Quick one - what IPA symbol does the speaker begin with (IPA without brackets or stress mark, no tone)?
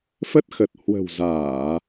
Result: f